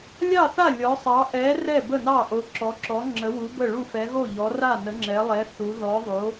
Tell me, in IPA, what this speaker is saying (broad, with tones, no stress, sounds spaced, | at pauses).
lʲ ɑ˥˩ θ a˥˩ lʲ ɔ˨˥ sˤ ɑ˨˥ ʔ ɛ˨˥ r ɛ˥˩ b ə˥˩ n ɑ˥˩ ʔ o˨˥ ǁ ɔ˨˥ ǁ ɔ˨˥ ŋ͡ǁ ə˨˥ w u˨˥ b ə˥˩ ɭ u˥˩ f ɛ˨˥ ɣ o˥˩ ʎ ɔ˨˥ r a˥˩ n ə˨˥ ŋ͡ǁ ɛ˨˥ lˠ ɛ˨˥ θ u˨˥ ð ɔ˨˥ ðˤ o˨˥